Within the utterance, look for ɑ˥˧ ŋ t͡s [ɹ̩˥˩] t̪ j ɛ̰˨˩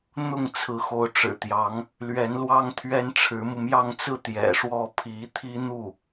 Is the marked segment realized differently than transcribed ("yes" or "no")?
no